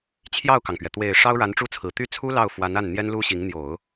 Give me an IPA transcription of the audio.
t͡ɕʰ j ɑ˥˩ ʊ̯ k ɑ˩ ŋ p ɥ ɛ˩ t̪ w e˨˩ ɪ̯ ʂ ɑ˥ ʊ̯ ɻ a˧˥ n ʈ͡ʂ u˥˩ t͡sʰ ɹ̩˨˩ t̪ y˥˩ t͡sʰ u˥ l ɑ˥˩ ʊ̯ f w a˧˥ n a˥˩ n n̪ j ɛ˥ n l u˥ ɕ i˧˥ ŋ n̪ j o˨˩˦ ʊ̯

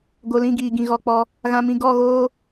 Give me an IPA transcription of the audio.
ɡ o˨ l ĩ˦˨ ɡ iː˨ ɡ ĩ˨ ɣ ɔ˧ k͡p ɔ˦ | ɣ ã˧ m ĩ˧ ɡ ɔ˦˨ ɣ oː˦

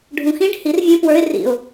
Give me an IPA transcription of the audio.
ɖʱ ũ x ĩ ɖ h i r vʲ ũ p w ə˞ ɪ̯ r ḭ ʊ̯

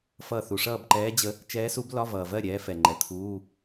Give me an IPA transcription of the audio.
f ʌ˥˩ θ u˨ ʂ ʌː˥˩ b ǃ ɛː˧˥ d͡ʑ ə˧˥ | t͡ʃ ɛː˧˥ s u˧˥ b l ɒ˧˥˧ v ʌː˨ v ɜ˥˩ ɾʲ ɛː˧˥ f ɛ˨ ŋ͡ǃ ɛ˨ t̪ʰ uː˧˥˧

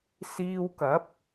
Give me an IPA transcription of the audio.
s iː˧ w k ɐ˨˥ p̚

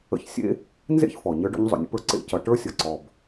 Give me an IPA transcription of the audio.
ə̰˧ ç sʲ ḛ˥ | n z ḛ˥ ç f ɔ˩ ɲ ə˞˧˥ ɖ ɔ̰˧˥ ɲ zˤ o̰˩ nʲ ə̰˧˥ p ə˞˧ ǀ ḛ˧˥ c ʌ˩˧ ʈ ə˞˧˥ sʲ ʌ˩ ǀ ɔ˩ b

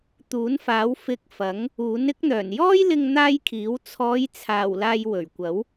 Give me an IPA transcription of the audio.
t̪ uː˨˥ n f aː˨˥ w f ɪ˧ k̚ f ɐ˨˥ ŋ | uː˨˥ n ɪ˥ k̚ n̪ œː˨˩ n j ɔː˥ j l ɪ˧ ŋ n̪ aː˥ j kʰ iː˨˥ w t͡sʰ ɔː˨˧ j t͡sʰ aː˨˩ w l aː˧ j w ɵ˨˩ ɥ kʷ ɐ˨˥ w

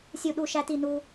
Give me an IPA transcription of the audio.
sʲ u˧˩ ɗ u˧˩ ʃ æ˧ t i˧˩ n u˧

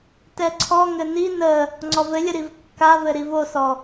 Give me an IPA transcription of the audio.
t ɛ ǀʰ ɔ ŋ ɘ n i n ə | ŋ͡ǀ ɔ v ɘ lʲ ə ɾ i v kː a v ɘ ɾ i v o s ɔ

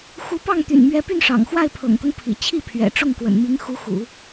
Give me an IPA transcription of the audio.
x u˧˥ p ɑ˥˩ ŋ t̪ y̰˨˩ n m ɥ ɛ˥ p y˥˩ n ʂ ɑ̰˨˩ ŋ x w a˥˩ ɪ̯ pʰ ɤ̰˨˩ ŋ t̪ ɤ˦ ŋ pʰ ḭ˨˩ t͡ɕʰ i˥˩ pʰ ɥ ɛ̰˨˩ ʈ͡ʂ ʊ˥˩ ŋ k w ə̰˨˩ n m i˧˥ ŋ x u˧˥ x ṵ˨˩˦

